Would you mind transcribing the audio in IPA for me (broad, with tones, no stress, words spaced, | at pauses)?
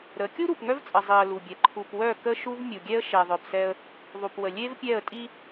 ɾə˨˦ kʲu˦ɾu˨pŋœ˦vt͡sʼə˨ zˤi˨ə̯ lu˨bʲɛ˨ ǃʰu˨pwœ˦˨ kə˦ʃu˦v mʲu˨ɡʲɛ˦ə̯ʃe˨ ðˤœ˨psɛ˦ə̯ | ðˤu˨pwə˨ lʲe˦vpʲɛ˦˨ə̯ tʼi˦